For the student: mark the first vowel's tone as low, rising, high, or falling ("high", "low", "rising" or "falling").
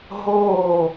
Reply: falling